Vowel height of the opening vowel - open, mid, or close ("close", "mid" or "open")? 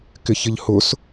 close